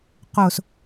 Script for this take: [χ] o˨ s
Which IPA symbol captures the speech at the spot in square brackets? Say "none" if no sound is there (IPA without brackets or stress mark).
q